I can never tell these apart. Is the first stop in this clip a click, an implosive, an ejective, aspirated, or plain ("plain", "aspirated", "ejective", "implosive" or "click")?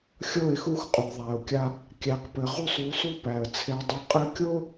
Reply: ejective